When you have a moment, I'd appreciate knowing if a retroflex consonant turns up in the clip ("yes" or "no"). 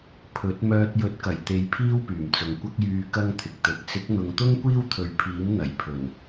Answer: no